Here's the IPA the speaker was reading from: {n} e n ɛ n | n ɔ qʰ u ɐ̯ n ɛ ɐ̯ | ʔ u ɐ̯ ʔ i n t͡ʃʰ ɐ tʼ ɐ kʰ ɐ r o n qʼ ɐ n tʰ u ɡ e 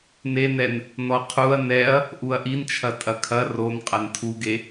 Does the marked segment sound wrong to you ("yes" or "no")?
no